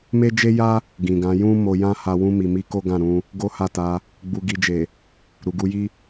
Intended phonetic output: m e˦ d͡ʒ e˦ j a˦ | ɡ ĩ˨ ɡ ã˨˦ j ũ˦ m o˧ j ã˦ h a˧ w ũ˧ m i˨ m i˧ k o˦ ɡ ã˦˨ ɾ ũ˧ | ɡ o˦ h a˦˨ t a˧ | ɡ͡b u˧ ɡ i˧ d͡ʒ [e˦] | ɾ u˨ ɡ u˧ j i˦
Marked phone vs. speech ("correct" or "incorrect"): incorrect